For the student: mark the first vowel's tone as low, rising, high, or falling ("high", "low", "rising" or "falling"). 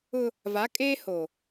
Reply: high